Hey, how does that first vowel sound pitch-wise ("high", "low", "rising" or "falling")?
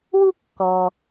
high